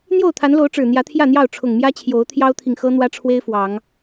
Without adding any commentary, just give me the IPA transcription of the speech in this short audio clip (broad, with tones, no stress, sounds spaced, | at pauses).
n̪ j o˥˨ ʊ̯ t̪ʰ a˨˦ n l o˨˦ ʊ̯ ʈ͡ʂ ɻ̩˨˩ n̪ j ä˨˦ t̪ʰ j ä˥˨ n̪ j ɑ˥˨ ʊ̯ ʈ͡ʂʰ ʊ˨˩ ŋ m j ä˦ t͡ɕʰ j o˨˦ ʊ̯ t̪ʰ j ɑ˦ ʊ̯ t̪ʰ i˨ ŋ x ɤ˦ n̪ w ä˦ ʈ͡ʂʰ w e˦ ɪ̯ f w ɑ˨˦ ŋ